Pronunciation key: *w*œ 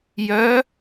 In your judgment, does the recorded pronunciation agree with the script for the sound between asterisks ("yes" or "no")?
no